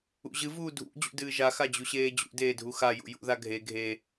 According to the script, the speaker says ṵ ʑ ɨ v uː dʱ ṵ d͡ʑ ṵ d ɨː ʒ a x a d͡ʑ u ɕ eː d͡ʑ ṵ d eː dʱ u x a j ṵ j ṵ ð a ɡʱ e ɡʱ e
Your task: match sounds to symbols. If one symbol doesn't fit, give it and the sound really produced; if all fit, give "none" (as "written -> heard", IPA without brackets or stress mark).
none